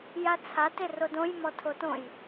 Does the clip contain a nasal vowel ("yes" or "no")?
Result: yes